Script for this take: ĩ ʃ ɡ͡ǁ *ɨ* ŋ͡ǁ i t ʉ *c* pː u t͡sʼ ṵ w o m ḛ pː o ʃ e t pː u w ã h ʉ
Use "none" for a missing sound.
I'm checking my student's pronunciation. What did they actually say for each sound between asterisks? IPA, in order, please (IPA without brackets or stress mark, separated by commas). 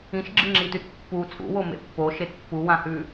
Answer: ɨ, t